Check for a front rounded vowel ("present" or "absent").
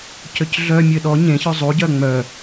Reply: present